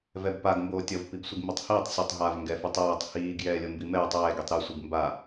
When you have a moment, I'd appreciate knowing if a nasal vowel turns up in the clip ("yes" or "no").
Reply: no